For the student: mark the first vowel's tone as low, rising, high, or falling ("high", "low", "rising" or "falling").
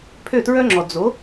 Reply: falling